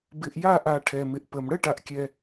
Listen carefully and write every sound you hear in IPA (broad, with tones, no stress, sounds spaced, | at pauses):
b ɪ˨ ʔ j a˦˨ ʔ a˨ ʈʰ ɛ˨ m ɪ˨ ʔ p ə˨ m ɽ ə˦˨ ʈ a˨ ʔ kʲ ɛ˨